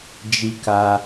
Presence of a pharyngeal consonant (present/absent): absent